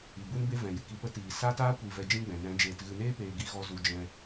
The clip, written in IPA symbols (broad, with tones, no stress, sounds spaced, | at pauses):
i˨ b u˦ n b e˦ v ɛ̃˨ j ɨ˨ k i˨ p ə˧ t iː˨ s aː˦ t aː˦ kʷ i˨ v ɛ˧ d͡ʒ ĩ˦ ɡ͡b ɛ̃˨ n ɛ̃˨˦ d͡ʒ eː˨ t ɣ ɨ˨ n eː˦ p eː˨ ɡ i˦ ɣ ɔ˦ z u˧ d͡ʒ ɛ̃˧